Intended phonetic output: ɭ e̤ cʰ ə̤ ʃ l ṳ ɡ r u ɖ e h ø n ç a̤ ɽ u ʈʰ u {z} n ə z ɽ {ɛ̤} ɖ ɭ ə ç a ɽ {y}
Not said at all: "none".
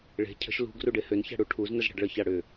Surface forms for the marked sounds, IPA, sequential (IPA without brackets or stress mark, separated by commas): z, ɛ̤, ʏ